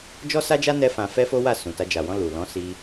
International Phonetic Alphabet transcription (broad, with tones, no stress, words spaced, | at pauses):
d͡ʒɔ˦sa˦d͡ʒa˦ nɛ˦ fã˧fɛ˦fo˦wa˦˨ sũ˨ta˧ d͡ʒa˨wɔ̃˧ lu˨ lɔ̃˨˦si˧